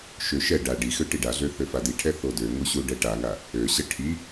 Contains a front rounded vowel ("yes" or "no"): yes